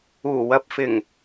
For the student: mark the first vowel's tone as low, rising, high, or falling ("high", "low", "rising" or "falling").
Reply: low